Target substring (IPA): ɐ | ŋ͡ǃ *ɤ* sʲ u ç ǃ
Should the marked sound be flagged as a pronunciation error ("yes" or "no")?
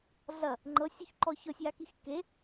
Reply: no